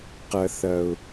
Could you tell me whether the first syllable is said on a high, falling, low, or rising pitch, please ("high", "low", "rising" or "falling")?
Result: low